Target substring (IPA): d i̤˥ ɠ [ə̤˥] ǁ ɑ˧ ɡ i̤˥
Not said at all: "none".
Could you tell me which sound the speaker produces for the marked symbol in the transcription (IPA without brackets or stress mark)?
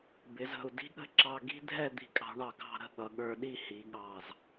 ə̤˥